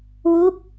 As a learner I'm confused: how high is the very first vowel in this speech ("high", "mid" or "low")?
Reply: high